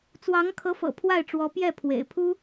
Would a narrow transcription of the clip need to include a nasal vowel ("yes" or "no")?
no